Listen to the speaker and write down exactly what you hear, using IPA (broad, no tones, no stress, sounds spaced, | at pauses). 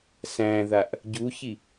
s æ̃ ð a ʔ | ɟ u ç i